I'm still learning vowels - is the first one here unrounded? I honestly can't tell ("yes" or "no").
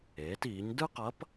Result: yes